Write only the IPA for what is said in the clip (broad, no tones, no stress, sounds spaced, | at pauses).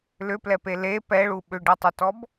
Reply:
l ʏ p l ɛ p e l e p ɛ ɭ u ɓ ʏ ɖ ɛ tˤ ʏ t ɔ b